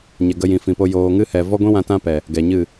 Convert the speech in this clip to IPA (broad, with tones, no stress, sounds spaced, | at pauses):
ɲ ɛ˨ ɡ ə˧ j ĩ˨ f ĩ˨ p o˧ j oː˨ ŋ ɨ˦ h ɛ˨ v ɔ˦ ɡʷ ĩ˦ w ã˧ t ã˦ p ɛ˨ | ɡ ɛ˨ ɲ ɨ˦˨